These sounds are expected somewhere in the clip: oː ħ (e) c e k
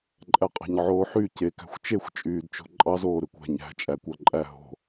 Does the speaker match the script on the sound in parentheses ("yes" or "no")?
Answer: no